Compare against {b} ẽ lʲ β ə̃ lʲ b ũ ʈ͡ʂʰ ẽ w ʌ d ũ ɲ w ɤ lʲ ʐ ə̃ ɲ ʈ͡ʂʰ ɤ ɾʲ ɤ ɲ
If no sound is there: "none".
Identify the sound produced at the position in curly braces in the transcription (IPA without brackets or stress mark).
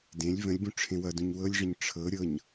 d